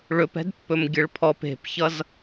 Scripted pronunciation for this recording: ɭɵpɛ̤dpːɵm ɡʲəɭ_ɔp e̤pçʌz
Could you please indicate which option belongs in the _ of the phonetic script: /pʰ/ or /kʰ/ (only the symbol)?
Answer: pʰ